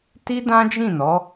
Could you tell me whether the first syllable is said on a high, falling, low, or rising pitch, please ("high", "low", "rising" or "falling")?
high